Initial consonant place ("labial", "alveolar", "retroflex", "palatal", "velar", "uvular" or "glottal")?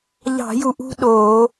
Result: palatal